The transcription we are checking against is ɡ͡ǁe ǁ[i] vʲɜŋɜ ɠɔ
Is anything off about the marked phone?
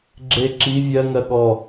no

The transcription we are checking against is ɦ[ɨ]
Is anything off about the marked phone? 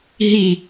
yes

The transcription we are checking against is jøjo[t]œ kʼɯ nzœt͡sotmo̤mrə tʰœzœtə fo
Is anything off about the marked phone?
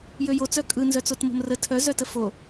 yes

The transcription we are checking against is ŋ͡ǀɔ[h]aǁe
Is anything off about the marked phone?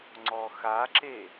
yes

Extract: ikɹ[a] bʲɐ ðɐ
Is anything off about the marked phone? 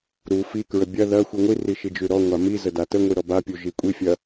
yes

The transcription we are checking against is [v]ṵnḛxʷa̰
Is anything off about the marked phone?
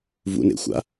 no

